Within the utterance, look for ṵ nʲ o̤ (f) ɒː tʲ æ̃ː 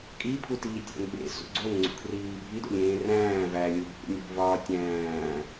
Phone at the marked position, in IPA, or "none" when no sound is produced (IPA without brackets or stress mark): v